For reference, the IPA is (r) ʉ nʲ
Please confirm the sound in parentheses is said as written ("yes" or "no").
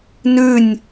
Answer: no